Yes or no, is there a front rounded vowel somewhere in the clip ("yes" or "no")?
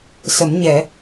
no